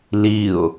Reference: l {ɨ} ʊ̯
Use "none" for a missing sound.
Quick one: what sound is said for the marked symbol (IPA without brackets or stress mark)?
i